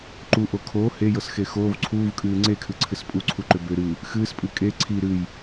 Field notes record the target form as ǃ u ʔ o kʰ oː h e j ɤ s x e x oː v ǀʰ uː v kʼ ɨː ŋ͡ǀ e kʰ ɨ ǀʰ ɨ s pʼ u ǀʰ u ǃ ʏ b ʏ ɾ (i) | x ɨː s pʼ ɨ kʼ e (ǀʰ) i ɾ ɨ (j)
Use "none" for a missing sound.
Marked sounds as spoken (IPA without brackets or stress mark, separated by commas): ɨ, ǀʰ, j